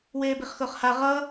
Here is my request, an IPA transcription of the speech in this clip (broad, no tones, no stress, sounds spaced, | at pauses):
w eː b i χ x ʊː χ h a ʁ ʌ